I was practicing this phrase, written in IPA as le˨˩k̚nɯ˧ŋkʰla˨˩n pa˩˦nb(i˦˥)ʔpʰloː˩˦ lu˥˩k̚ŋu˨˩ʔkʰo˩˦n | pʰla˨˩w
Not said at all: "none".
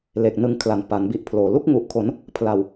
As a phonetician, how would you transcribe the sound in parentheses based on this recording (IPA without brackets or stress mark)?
i˦˥